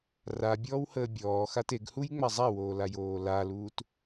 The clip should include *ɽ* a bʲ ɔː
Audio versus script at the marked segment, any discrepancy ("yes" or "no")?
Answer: yes